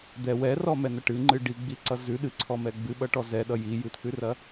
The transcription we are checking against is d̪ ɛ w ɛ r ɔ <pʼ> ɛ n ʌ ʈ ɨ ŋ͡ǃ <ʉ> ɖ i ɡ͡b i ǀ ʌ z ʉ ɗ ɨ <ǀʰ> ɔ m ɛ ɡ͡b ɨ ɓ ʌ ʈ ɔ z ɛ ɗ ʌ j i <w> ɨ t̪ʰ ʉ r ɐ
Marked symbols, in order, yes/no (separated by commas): no, no, yes, no